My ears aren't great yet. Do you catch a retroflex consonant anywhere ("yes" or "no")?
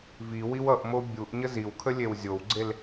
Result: no